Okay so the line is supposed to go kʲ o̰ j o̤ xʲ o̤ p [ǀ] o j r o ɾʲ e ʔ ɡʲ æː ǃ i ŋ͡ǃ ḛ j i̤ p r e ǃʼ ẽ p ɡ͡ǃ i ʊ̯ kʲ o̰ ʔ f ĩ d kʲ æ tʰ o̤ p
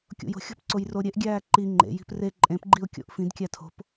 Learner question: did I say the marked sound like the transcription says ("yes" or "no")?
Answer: yes